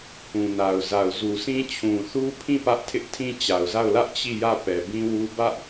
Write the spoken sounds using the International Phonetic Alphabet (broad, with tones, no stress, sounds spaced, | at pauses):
h ũ˨ n a˨ ʊ̯ z a˨ ʊ̯ z u˨ s ĩ˦ t͡ɕʰ ũ˨ θ u˦ pʰ ĩ˦˨ p ä˦ ʔ tʰ ɪ˦ ʔ tʰ ĩ˦ t͡ɕ a˨ ʊ̯ z a˦˨ ʊ̯ l ä˦ ʔ t͡ɕ i˦˨ j ä˦˨ p ɛ˨ b ĩ˦ w u˦ b ä˦ ʔ